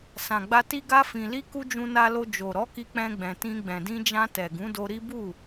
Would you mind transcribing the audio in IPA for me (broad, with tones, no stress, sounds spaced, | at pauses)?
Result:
s ã˨ ɡ͡b a˧ t i˧ ɡ a˧ f ĩ˨ l i˧ k u˧ d͡ʒ ũ˧ n a˧ l o˧ d͡ʒ o˨ ɾ ɔ˨˦ k i˧ k͡p ɛ̃˧ ɡ͡b ɛ̃˨ t ĩ˧ ɡ͡b ɛ̃˨ d ĩ˧ d͡ʒ ã˧ t ɛ˨ ɡ ũ˨˦ d o˧ ɾ i˦ b u˦˨